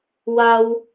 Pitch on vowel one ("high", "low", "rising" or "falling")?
high